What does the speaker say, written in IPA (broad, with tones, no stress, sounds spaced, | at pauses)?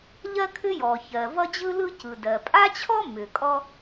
ʎ ɜ˥ kʰ ʏ˥ j ɔ˩ ç ɜ˩ v ʌ˥ d͡ʑ ɯ˥ l ɯ˥ c ɯ˩ d ɜ˩ pʼ a˥ t͡ɕʰ ɔ˥ m ʏ˩ kʼ ɔ˥